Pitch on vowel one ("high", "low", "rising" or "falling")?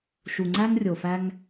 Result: low